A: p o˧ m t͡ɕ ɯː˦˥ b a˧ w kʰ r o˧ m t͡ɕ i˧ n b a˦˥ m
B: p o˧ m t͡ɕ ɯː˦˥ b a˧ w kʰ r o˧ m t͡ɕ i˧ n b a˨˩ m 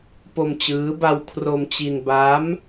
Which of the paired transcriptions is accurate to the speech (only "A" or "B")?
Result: A